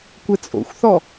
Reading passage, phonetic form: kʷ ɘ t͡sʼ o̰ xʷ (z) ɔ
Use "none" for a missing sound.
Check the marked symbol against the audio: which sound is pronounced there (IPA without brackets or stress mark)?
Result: θ